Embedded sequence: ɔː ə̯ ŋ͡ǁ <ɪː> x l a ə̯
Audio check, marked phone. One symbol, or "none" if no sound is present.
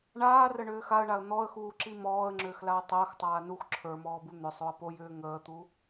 ʏː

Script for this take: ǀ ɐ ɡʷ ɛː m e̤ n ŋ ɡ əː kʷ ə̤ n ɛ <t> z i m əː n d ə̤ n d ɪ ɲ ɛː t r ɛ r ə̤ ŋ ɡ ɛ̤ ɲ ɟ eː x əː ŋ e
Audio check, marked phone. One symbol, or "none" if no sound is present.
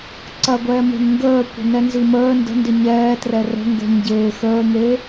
n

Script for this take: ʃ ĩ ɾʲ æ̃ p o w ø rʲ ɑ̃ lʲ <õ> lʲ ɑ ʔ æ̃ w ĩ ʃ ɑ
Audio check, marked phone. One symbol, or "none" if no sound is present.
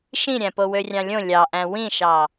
õ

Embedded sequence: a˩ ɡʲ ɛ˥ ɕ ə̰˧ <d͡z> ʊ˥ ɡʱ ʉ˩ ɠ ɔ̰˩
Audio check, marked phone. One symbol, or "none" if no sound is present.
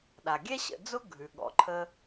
d͡z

